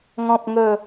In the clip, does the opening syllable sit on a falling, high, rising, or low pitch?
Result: low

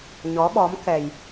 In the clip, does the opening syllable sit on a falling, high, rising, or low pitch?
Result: rising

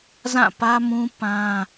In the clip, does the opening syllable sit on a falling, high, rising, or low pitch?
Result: falling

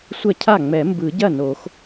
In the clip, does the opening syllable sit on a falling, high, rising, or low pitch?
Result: falling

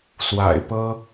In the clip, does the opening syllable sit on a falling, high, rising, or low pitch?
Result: low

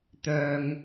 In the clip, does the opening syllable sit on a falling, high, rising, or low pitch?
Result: low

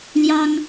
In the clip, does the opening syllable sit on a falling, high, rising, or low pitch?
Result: high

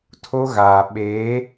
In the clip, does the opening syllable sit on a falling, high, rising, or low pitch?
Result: high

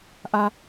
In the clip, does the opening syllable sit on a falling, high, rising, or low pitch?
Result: low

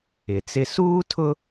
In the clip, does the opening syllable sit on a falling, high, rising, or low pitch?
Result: low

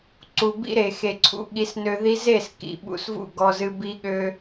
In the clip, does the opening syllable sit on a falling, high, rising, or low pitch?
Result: low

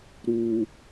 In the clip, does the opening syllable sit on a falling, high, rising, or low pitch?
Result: low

